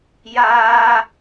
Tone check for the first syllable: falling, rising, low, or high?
high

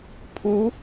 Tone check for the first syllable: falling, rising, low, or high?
rising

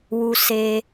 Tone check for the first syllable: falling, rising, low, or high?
low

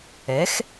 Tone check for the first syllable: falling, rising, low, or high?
rising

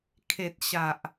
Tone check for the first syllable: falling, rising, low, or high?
low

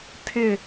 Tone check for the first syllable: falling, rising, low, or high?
falling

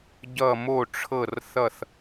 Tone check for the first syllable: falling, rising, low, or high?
falling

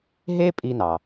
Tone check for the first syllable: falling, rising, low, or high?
high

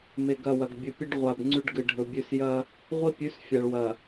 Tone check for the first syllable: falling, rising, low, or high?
low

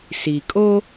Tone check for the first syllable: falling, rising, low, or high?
low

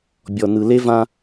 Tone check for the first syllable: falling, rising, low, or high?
low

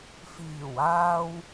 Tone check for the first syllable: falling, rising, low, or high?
low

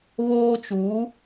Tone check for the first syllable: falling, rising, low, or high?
high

